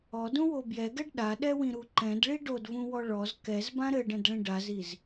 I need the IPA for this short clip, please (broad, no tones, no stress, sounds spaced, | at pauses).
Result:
ɔ d ũ w o b j ɛ ɡ ɛ ɖ ɗ a ɗ ɛ w ĩ ɾ u ǃ ɛ̃ d ɭ i ɖ o d v ũ w ɔ ɭ ɔ z k ɛ z b ã ɾ ɘ ɖ ɛ̃ d ɭ ĩ ɖ a z i z